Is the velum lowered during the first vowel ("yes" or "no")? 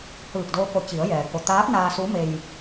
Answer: no